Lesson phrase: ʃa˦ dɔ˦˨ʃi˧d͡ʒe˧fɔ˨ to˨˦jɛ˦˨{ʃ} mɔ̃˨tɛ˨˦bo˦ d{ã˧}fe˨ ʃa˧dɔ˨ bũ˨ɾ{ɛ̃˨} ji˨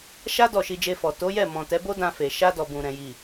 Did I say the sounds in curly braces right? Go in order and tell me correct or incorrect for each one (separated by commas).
incorrect, correct, correct